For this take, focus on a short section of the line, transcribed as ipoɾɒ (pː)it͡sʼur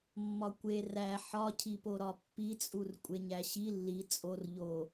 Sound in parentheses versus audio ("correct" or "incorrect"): correct